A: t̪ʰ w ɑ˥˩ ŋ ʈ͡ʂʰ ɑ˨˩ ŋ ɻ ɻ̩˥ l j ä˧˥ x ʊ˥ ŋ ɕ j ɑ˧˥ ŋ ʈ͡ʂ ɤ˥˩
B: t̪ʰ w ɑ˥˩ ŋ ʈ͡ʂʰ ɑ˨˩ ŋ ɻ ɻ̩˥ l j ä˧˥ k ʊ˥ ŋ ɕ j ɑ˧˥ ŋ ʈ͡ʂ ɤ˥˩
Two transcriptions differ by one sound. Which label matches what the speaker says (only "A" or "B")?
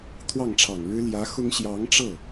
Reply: A